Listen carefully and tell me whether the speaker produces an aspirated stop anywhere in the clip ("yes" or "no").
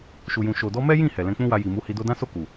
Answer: no